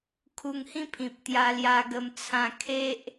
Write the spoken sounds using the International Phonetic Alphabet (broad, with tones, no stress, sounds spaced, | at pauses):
kʰ u˧ ŋ h ĩ˦ pʰ ĩ˨ p̚ t̪ j a˧ l j a˧ ɡ ə˧ m t͡sʰ ã˧ kʰ e˦ ʔ